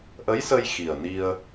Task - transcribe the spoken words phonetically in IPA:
ʔə˧˥jsə˧j xi˨˩ə̯ni˧ə̯

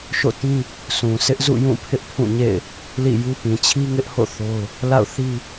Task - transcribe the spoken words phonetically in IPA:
ʃo̰˦˨tĩ˦ | sũ˨sɪ˦ʔ zṵ˦˨ jũ˦˨pʰɪ˦ʔpʰũ˦˨ɲḛ˦˨ɪ̯ | lḭ˦˨ju˦ pĩ˨t͡ɕʰi˦ŋɪ˦ʔho̰˦˨ θo˦ʊ̯ | la̰˦˨ʊ̯θi˦

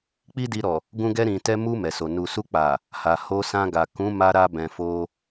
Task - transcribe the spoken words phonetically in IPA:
k͡pi˦di˧ɾɔ˨ | ɡũ˧ɡɛ˧ ɾĩ˨ tɛ˧mu˧ mɛ˨so˨ nu˨su˧k͡pa˨ | ha˨ho˧sã˧ɡa˨ kũ˨˦ma˧ɾa˧bɛ̃˨ fo˧

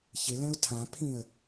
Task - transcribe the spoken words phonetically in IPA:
çɪlɛ̃ʊ̯ tʰãpʰĩə̯

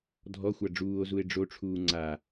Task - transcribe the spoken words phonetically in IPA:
dʱɔxʷa ɖ͡ʐuːo̯zue̯ ɖ͡ʐoʈ͡ʂʰuː ŋ͡ǀa

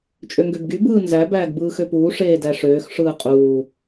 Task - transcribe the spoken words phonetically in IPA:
t͡ʃʼøŋɡøbɡy bɯːnzæ bæːɡbɯːxøpuː ʂeːdæʂøːx ʂɯːqʼuː

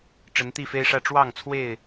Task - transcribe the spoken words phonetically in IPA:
ʈ͡ʂə˨˦nt̪i˥˨fe˦ɪ̯ʂä˦ ʈ͡ʂwɑ˥˨ŋt͡sʰwe˥˨ɪ̯

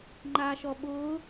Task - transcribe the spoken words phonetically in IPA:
ŋ͡ǃaːʃɔɓʊː

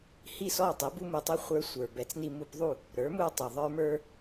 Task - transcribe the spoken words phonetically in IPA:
hi˥˩sɔ˥˩ tˤi˩˥ bu˥mu˧tˤu˥ χʷə˞˧sʷə˞˩bɛ˩˥t͡s ni˧mu˧pðˤu˥˩ | ɾə˞˩˥mu˧ tˤu˩ðˤə˞˥mə˞˥

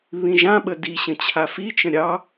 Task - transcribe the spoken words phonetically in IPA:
βĩʒãɓə diɕə̃ t͡ɕʰafit͡ʃə̃ ɾʲɑ

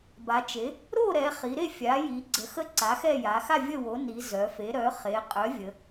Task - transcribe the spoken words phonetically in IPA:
ba˩˧t͡ʃe˩˥ | ɾo˥˨ɾɛ˩˧ χi˩˧ɾe˥˨ fʲa˩˥ji˩˧ ɡ͡ǀə˩˥xə˥˨ ǀa˩˥xɛ˥˨ ja˩˧xa˥˨ vʲə˥˨ wo˩˥ ni˩˧ zœ˩˧fe˩˥ ɾœ˩˥χe˩˧ qʼœ˩˥vʲə˩˧

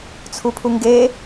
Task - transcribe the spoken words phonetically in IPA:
t͡sʰupʰuŋɡe

